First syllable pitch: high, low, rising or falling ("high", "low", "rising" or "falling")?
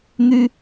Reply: high